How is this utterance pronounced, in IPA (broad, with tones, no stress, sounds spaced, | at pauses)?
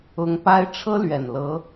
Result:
ʊ˧˥ ŋ p a˥ ɪ̯ ʈ͡ʂʰ ɤ˥ l ɥ ɛ˨˩ n l ɤ˧˥